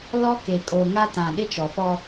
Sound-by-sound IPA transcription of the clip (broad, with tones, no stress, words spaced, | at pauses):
lɔ˦ke˨ kʼo˨ŋa˦ tã˨ ɗɪ˦t͡ʃɔ˨fɔ˦